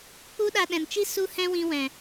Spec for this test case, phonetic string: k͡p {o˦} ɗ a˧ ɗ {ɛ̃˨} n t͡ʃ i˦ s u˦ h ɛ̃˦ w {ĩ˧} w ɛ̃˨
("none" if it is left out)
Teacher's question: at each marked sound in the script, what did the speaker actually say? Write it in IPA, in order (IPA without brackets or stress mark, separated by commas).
u˦, ɛ̃˨, ĩ˧